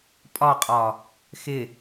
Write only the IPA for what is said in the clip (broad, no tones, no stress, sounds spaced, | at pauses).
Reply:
pʼ ɒ qʼ ɒ | x ɪ